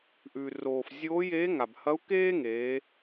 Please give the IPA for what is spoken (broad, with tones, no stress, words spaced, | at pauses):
ʔʉ˩roː˩f zʲoː˧˥jeː˧˥ ŋa˩bhɐ˧˥u̯ keː˥ŋeː˩˧